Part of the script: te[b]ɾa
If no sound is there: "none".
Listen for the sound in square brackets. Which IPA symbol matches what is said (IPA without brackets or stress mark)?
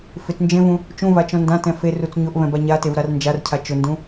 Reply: v